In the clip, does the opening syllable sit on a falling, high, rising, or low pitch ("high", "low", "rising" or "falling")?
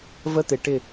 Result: high